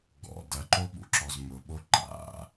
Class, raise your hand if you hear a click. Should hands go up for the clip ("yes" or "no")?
yes